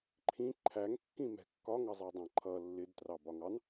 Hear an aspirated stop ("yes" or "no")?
yes